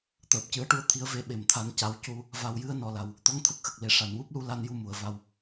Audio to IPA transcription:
t̪ əː˨˩ p̚ c ɨ˨˩˦ ə̯ ʈ u˧˥ ə̯ t̪ʰ i˧˥ ə̯ v e˧˥ ɓ e˨˩ m t̪ʰ a˧ n c a˧˥ w c u˧ | v a˨˩ w j ɨ˧ ə̯ n ɔ˨˩ l a˨˩ w | t̪ ɔ˧˥ ŋ t̪ʰ ə˦˥ k̚ x ə˨˩ k̚ l e˨˩˨ ʂ a˨˩˨ n w u˦˥ p̚ l u˧ l a˧ n j u˧ m u˨˩˨ ə̯ v a˧ w

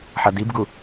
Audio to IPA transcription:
ħ ʌ d i b ɡ u

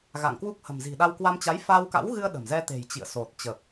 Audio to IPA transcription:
ɣ a̰˧˨ ŋ k w u˦˥ k̚ h ə̤˨˩ m z i̤˨˩ ɗ a˧ w k w a˧ m t͡ɕ a˨˦ j f a˧ w k a̰˧˥ w ɣ ɨ˧ ə̯ ɗ ə̤˨˩ m z ɛ˧ t̪ e̤˨˩ j t͡ɕ ḭ˧˨ ə̯ s o˨˩ t̚ t͡ɕ ə˨˩ p̚

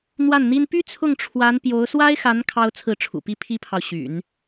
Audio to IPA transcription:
n̪ w a˥˩ n n̪ i˥ n p y˥ t͡sʰ ʊ˥˩ ŋ ʈ͡ʂʰ w a˧˥ n p j o˧˥ ʊ̯ s w a˥ ɪ̯ x a˧˥ n kʰ ɑ˥ ʊ̯ t͡sʰ ɹ̩˥˩ ʈ͡ʂʰ ṵ˨˩ p i˥ pʰ i˥ pʰ ɑ˨ ʊ̯ ɕ y̰˨˩˦ n

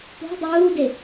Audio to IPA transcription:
p o̤ dˤ uː d e

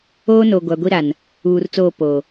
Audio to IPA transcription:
oː˦ n o˨ ɡʷ a˨ ɡʷ i˦ ɾ a˨ n | uː˨ r t͡s oː˦˨ p o˨

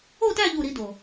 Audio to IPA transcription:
o˥˧ t æ˥˧ ʎ u˥˧ ɾ i˦˥ d o˨˩

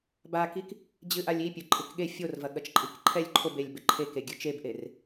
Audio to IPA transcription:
b a k i k | d͡ʑ ɨ ʔ a lʲ i pʲ ɘ ǃʼ ɨ k ɠ e fʲ o r v ɐ ɠ ɐ t͡ʃ ǃʼ i k ǃʰ ɛ lʲ ǃʰ o b e lʲ b ɘ ǃʰ e k e ɡʲ ɨ t͡ʃ e b ʔ e r

